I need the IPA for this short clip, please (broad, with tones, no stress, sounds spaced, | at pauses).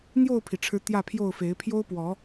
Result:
n̪ j o˥˨ ʊ̯ pʰ i˩ ʈ͡ʂʰ ɻ̩˨˦ t̪ j ä˥˨ pʰ j o˥˨ ʊ̯ f e˨˦ ɪ̯ pʰ j o˦ ʊ̯ p w ɔ˨˦